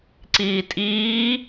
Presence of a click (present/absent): present